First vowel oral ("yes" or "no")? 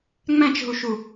no